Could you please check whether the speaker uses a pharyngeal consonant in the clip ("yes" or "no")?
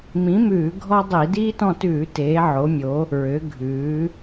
yes